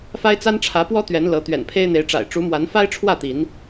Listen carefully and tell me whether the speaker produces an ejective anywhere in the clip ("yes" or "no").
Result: no